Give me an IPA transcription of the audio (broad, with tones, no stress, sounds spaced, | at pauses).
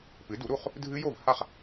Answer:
p ɨ˩˥ d u˩˥ ɾ u˥˩ χ | dʱ ɨ˦˥ j o˥˩ v h a˥˩ χ